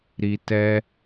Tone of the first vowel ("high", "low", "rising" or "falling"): low